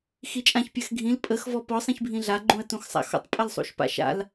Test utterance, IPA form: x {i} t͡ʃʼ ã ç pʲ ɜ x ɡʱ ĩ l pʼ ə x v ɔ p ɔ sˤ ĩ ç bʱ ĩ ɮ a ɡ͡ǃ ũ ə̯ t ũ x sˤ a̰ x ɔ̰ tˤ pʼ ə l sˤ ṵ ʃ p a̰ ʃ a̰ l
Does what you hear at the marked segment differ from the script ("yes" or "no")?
no